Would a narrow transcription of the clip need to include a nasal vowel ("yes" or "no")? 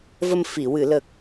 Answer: no